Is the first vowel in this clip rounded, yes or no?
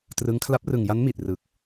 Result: no